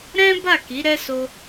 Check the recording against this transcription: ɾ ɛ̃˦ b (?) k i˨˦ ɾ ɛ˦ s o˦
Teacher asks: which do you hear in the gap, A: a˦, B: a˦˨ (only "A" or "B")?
B